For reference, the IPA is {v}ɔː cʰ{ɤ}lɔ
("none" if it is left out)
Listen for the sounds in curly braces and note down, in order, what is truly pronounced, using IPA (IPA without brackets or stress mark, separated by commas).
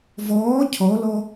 v, ɔ